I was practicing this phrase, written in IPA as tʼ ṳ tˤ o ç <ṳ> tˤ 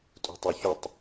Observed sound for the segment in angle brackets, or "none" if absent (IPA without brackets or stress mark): u